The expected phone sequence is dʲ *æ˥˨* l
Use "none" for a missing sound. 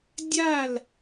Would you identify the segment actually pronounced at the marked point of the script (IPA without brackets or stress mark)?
a˥˨